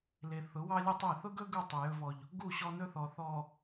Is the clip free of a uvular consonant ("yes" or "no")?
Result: yes